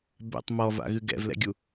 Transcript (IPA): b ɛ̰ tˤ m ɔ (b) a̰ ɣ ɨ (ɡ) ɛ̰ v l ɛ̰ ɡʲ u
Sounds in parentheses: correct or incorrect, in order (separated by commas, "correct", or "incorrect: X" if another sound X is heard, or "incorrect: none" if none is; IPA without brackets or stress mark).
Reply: incorrect: v, correct